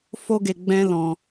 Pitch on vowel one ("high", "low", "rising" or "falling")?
high